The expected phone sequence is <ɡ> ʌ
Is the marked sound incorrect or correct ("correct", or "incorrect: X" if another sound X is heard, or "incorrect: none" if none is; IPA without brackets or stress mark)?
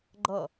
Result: incorrect: ɡ͡ǃ